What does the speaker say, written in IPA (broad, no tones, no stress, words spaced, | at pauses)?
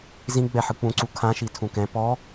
zĩ ɡ͡bɛħɯk͡pũ ǀukʰã ʃitʰũkɛ̃ pɔ